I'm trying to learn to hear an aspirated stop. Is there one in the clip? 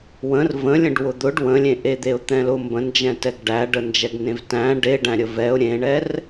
no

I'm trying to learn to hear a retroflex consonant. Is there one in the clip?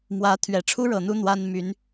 yes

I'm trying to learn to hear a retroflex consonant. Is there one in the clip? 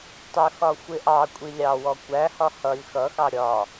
no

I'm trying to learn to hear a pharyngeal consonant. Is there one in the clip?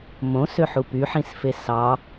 yes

